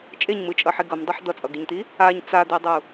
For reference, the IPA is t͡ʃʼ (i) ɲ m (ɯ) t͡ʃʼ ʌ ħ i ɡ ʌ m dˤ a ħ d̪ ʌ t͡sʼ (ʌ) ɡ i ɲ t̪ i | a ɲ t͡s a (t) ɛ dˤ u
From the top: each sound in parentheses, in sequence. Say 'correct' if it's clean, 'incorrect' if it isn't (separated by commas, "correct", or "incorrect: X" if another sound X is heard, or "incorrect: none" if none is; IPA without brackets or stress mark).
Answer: incorrect: e, correct, correct, incorrect: d̪